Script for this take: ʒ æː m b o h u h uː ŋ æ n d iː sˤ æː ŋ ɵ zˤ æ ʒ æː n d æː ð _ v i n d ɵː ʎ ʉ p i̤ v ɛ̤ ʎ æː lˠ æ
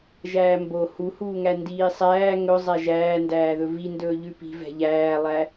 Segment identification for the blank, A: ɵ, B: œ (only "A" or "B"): A